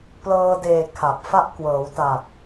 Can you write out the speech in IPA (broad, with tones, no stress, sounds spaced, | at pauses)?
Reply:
p l ɤː˧ d eː˨˩ kʰ a˨˩ p̚ f a˦˥ ʔ k w ɤː˩˦ w t a˨˩ t̚